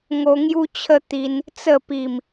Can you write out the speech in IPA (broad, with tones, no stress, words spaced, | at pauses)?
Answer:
ŋo˧ ŋju˦t͡ɕʰə˦t̪i˧n | t͡sə˥˧ pi˨˩m